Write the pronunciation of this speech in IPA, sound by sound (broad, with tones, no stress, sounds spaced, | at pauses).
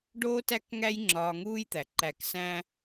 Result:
ɖ oː˦ t æ˦ k ŋ æ˦ j ŋ͡ǁ ɒː˧ ŋ uː˦ j t̪ æ˨ ǃ æ˧ k s æ̃˦